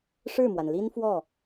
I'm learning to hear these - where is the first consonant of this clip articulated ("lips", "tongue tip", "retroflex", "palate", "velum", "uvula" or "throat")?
retroflex